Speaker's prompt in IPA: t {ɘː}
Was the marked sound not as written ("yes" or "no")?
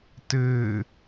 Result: no